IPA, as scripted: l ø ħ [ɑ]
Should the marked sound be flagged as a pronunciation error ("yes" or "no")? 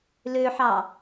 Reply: no